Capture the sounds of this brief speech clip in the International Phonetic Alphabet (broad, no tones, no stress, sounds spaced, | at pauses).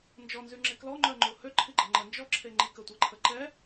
n d͡ʒ ɔ n z y ŋ͡ǁ e k l ɔ ŋ͡ǃ œ ŋ͡ǃ o h ø ǃʰ i ɡ͡ǃ ə ŋ͡ǃ ə n d͡ʒ ɔ ǁʰ e ŋ͡ǃ i k ə tʷ e ǃʰ ə ǃ ɛ